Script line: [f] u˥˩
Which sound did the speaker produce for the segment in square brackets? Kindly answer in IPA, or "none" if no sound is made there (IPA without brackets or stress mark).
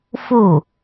f